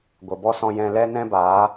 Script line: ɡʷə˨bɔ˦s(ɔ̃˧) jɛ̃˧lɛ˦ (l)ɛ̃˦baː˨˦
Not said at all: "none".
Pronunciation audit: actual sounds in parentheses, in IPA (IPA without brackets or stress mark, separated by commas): ɔ̃˧, n